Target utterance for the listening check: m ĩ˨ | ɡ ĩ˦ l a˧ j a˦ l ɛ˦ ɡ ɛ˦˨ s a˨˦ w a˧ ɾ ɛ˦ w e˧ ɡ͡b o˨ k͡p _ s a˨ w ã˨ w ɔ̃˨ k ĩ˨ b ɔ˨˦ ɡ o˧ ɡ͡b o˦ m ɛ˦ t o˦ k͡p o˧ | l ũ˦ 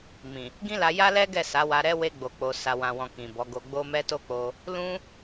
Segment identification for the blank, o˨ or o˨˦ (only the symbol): o˨